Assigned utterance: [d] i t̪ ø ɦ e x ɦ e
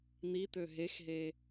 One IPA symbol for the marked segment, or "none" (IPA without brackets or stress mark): n̪